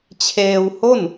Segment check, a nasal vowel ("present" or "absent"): absent